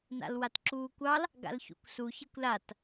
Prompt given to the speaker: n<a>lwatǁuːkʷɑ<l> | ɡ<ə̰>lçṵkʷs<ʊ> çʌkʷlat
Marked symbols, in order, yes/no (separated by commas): no, yes, no, no